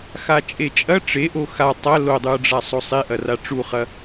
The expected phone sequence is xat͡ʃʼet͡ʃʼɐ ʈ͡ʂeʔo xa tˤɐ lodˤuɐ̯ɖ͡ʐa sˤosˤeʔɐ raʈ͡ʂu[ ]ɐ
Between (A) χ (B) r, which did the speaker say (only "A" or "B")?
A